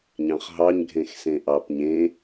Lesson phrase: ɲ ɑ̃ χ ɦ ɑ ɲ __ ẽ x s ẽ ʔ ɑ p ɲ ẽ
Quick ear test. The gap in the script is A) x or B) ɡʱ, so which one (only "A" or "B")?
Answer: B